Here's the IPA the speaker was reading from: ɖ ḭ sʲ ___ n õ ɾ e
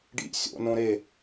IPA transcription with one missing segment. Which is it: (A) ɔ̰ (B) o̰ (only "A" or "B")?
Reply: B